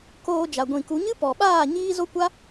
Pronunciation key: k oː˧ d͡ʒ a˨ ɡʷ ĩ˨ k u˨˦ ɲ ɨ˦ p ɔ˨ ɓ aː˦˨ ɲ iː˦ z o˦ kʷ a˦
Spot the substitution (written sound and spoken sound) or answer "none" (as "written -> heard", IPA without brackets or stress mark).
none